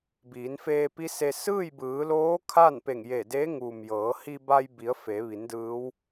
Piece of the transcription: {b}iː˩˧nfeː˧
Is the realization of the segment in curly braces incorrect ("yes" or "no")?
no